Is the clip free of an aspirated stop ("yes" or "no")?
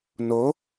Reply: yes